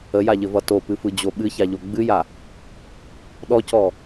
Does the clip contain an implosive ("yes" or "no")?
yes